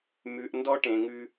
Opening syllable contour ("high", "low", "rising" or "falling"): low